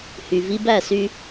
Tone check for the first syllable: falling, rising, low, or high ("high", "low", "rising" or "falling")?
low